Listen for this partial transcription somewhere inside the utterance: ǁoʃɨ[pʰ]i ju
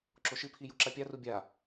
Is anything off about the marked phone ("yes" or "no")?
no